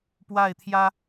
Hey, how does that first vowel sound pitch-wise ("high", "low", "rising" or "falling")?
falling